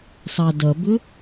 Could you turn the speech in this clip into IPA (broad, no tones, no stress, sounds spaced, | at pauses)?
sˤ a d ɐ b ʏ